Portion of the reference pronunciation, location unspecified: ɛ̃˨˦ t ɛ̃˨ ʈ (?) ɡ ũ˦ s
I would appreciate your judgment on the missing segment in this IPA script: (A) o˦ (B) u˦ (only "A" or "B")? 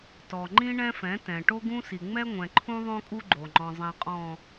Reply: A